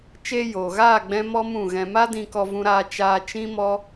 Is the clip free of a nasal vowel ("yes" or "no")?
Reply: no